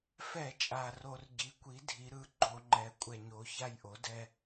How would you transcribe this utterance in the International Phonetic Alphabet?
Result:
f ɛ˧˩˧ t͡ʃʼ a˨˩ r o˧˩˧ r ɟ i˩˥ kʷ i˩˥ dʱ i˩˧ ɾ ɯ˩˧ ɡ͡ǃ o˧˩˧ ŋ͡ǃ ɛ˩˧ kʷʼ ɛ˨˩ ɲ o˩˧ ç a˦˨ j ʔ o˩˥ d ɛ˦

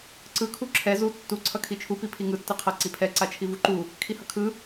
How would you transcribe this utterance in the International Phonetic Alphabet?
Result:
ǀ ɯ kʰ u ǁʰ ɛ z u tː u ǀʰ ʌ kʰ i t͡ʃʰ u p i pʰ i ŋ ɯ tː ɯ qʰ ʌ ǀ i pʰ ɛ ǀ a t͡ʃʰ i v u ǃ u | kʰ i h ʌ kʰ ɯ

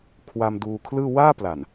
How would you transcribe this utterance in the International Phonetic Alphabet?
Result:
kʰ w a˧ m d uː˧ kʰ l ɯː˥˩ w aː˥˩ p l a˨˩ n

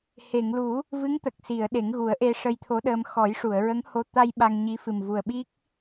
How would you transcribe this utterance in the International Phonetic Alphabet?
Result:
h e˨˩˨ ŋ l u˨˩˦ | v ɨ˧˥ ŋ t̪ ə˨˩ k̚ s i˨˩˨ ə̯ ɗ e˨˩˦ ŋ ɣ u˨˩˦ ə̯ ʔ e˧ ʂ ə˧ j t̪ʰ o˧˥ ɗ əː˧ m x ɔ˨˩˦ j ʂ u˨˩˨ ə̯ ɹ ə˧˥ ŋ h o˧ t̪ a˧ j ɓ a˧ ŋ ɲ i˧˥ f ɨ˨˩ m v u˨˩ ə̯ ɓ i˦˥ k̚

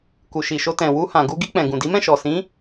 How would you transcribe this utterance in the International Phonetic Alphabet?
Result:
k u˨ ʃ i˨ ʃ o˧ t ɛ̃˨ w u˧ h ã˨ ɡ u˧ ɡ i˧ k͡p ɛ̃˨ ɡ ũ˨ d i˨˦ m ɛ̃˦˨ ʃ ɔ˨ s ĩ˨˦

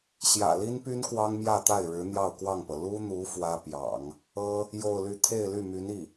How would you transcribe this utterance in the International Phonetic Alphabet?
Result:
ɕ j ä̰˨˩ l i˥ n p y˥ n k w ɑ˥ ŋ m j ä˥˧ t̪ a˥˩ ɪ̯ ɻ ɻ̩˧˥ n̪ j ɑ˥˧ ʊ̯ k w ɑ˥˩ ŋ p ɤ˩ l u˥ n̪ u˧˥ f w ä˥ p j ɑ̰˨˩˦ ŋ | ɤ˥ | j o˥˧ ʊ̯ l y˥˧ t̪ʰ e˥˧ ɪ̯ l y˥˩ m y˧˥ n i˥˩

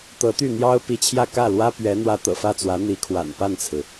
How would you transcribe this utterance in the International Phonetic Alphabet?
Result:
t̪ ɤ˧˥ t̪ y˥˩ n̪ j ɑ˥ ʊ̯ p i˧˥ t͡ɕʰ j ä˥˧ k ä˥˩ l w ä˥ p ɥ ɛ˧˥ n̪ w ä˧˥ t̪ ɤ̰˨˩ f ä˥˩ t͡s w ä˧˥ n̪ i˧˥ kʰ w a̰˨˩ n p a˥˩ n t͡sʰ ɹ̩˩

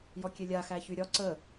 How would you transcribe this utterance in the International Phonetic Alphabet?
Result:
j ɔ kʲ e lʲ a x æ ç y ɾʲ ɒ ǀ ə

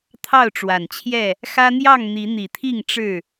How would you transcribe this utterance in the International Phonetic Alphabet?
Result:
t̪ʰ ɑ˥˨ ʊ̯ ʈ͡ʂ w a˨˩ n t͡ɕʰ j ɛ˥˨ | x ä˦ n̪ j ɑ˥˨ ŋ n̪ i˨˦ n̪ i˨˩ t̪ʰ i˥˨ ŋ ʈ͡ʂ ɻ̩˥˨

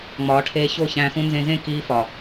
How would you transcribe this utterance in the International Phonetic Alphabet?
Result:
ŋ͡m ɒː˨˦ ʈʰ eː˧ ç o˦˨ ç æ̃˧ x ũ˦ n z ẽ˧ z ẽ˦˨ k iː˧ f ɒ˨

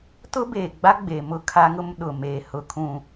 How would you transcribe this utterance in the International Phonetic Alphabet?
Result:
t ʊ˦ b eː˨ ɡ͡b a˦ ɡ͡b e˨ m ʊ˦ kʰ a˦ ŋ ʊ˦ m ɗ ʊ˨ m eː˨ h ʊ˨ kʰ ũ˨

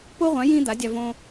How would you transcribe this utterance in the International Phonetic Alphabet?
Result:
p o˦ ʁʷ ã˨˦ j ĩ˦ d̪ a˨˦ dʲ a˧ v õ˧

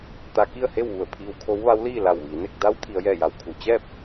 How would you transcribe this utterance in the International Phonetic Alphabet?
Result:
t̪ a˧ k i˥˨ ə̯ h e˥˨ w ʋ u˧˩ ə̯ pʰ iː˧ w kʰ o˧˥ w ʋ a˧˥ w l iː˥˨ l a˧˩ w ʋ iː˩˧ n e˥˨ k̚ d a˧˥ w t̪ʰ i˩˧ ə̯ j ɛː˧˩ j a˩˧ w kʰ u˩ t͡ɕ ɛː˥˨ p̚

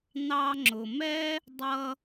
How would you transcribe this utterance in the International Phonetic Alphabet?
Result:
n̪ ɑ˧ ŋ͡ǁ ʊ˩ m ɛ˥ | dˤ ʌ˧

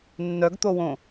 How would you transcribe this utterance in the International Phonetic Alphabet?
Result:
nː œ ɡ t̪ o w õ

